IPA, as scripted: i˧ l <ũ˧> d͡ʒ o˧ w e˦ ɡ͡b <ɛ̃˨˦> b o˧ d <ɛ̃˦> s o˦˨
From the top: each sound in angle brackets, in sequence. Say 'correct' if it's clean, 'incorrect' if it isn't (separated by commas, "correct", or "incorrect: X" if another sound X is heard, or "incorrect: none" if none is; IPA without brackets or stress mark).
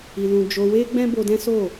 correct, incorrect: ɛ̃˦, correct